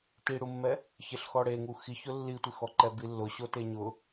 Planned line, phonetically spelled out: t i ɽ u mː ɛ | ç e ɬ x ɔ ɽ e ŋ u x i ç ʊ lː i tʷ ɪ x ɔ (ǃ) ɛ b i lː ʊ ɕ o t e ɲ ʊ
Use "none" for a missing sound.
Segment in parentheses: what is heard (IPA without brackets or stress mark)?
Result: ǃ